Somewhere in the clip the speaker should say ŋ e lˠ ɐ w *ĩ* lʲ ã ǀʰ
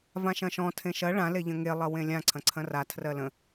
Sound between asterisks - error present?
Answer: yes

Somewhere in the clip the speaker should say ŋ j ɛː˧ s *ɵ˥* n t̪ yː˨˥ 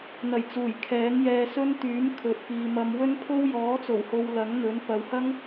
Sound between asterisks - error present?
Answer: no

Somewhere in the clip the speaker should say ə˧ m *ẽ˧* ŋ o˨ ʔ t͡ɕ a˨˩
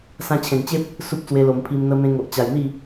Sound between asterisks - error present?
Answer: no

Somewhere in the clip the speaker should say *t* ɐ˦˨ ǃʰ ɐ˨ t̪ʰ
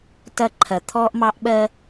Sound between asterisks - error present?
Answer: no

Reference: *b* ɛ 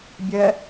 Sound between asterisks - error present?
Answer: yes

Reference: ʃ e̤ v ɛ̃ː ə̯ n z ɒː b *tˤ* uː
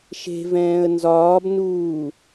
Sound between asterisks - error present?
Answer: yes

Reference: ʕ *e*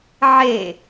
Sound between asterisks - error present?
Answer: no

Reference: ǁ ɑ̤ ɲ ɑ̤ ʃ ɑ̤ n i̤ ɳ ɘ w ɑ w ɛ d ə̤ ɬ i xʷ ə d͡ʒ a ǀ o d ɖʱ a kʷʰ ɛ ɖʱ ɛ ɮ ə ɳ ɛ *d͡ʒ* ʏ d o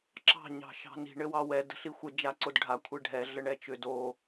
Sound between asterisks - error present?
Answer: yes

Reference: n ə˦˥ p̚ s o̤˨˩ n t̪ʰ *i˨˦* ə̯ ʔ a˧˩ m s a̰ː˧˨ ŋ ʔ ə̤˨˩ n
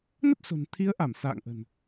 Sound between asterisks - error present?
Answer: no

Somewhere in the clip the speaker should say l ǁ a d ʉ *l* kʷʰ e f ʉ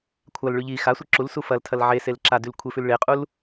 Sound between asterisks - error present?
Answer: no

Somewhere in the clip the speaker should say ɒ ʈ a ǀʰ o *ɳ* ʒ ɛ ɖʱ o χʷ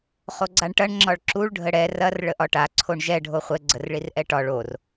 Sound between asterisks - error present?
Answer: no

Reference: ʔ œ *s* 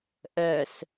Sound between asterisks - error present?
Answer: no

